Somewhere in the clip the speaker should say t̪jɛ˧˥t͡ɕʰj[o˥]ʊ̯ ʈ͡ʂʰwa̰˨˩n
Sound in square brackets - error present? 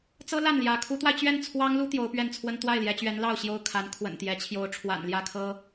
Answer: yes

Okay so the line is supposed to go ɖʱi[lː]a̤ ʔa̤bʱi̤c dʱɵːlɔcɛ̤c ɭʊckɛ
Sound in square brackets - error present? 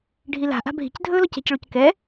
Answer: yes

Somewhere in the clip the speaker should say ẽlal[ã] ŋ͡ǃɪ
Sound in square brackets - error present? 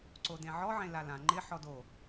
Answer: no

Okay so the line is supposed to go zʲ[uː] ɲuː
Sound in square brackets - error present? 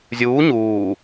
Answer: no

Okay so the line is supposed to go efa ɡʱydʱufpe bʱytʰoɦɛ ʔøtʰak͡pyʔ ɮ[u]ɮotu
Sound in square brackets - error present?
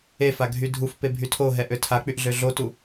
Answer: yes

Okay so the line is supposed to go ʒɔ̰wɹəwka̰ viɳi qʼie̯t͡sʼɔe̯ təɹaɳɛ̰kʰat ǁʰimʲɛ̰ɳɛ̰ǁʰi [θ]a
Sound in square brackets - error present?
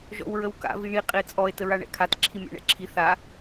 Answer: no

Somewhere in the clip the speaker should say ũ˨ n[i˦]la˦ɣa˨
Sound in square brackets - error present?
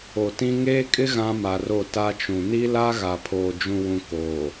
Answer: no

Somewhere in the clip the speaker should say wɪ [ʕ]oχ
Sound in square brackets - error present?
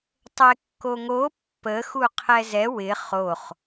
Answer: yes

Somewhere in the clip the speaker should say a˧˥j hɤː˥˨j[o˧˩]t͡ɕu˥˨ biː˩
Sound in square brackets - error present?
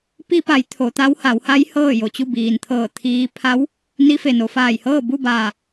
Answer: no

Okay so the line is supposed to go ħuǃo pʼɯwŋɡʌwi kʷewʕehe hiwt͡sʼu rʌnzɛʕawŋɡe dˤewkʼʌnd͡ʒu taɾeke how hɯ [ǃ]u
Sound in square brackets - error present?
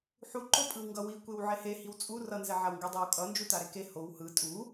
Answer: yes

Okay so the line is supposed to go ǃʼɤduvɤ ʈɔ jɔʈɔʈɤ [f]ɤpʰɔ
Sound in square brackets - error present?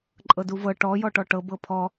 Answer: yes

